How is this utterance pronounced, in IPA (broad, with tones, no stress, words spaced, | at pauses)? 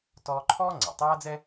tɔː˧ǃʰɔː˥ ŋ͡ǀa̰˩tˤaː˥d͡zɛ˥